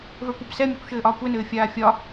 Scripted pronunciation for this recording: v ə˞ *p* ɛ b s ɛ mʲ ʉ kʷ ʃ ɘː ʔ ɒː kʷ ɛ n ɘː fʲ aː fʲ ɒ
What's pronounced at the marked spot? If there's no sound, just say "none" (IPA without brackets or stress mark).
kʷ